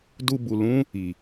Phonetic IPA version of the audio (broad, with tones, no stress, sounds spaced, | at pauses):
d u˧ b u˨ l ũ˦ | i˨